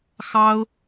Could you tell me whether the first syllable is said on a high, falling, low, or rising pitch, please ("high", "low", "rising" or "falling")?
high